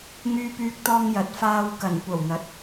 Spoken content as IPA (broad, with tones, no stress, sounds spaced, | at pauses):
ŋ yː˧ p yː˧ k̚ t̪ ɔː˧ ŋ j ɐ˨˥ t̚ f aː˧ w k ɐ˨˩ n kʷ ɐ˨˩ w n̪ ɐ˨˥ t̚